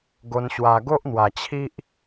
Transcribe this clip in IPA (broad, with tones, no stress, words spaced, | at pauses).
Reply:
ɡo˧nɕwa˧ ɡo˦ʔn̪wa˨˩t͡ɕʰi˦ʔ